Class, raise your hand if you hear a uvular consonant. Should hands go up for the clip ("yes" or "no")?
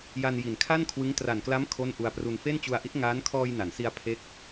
no